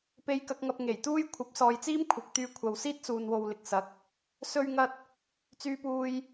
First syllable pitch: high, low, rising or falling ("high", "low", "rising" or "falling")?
low